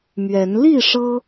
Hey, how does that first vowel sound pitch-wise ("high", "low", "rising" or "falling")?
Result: rising